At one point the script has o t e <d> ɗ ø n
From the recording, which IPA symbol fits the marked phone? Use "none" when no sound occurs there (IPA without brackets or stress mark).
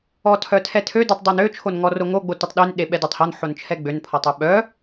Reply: tˤ